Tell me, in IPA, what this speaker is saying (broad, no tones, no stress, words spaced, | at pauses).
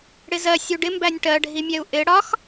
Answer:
ɽɪzɜ sʲuɖɪmbænʲ ʈɜɖʱimʲɛu̯ ʔɪ ɽɒx